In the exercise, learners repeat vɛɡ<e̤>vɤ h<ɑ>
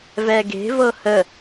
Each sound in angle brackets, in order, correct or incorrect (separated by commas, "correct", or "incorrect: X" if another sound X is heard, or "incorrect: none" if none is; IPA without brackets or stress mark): correct, incorrect: ə